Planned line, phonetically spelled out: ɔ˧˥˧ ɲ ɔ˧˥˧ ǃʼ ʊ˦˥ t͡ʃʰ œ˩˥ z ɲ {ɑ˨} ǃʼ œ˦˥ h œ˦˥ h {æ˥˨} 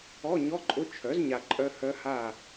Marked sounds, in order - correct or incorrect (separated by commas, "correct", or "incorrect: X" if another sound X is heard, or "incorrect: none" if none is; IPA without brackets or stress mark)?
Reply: incorrect: a˨, incorrect: a˥˨